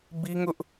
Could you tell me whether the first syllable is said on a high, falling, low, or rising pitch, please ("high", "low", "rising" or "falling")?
high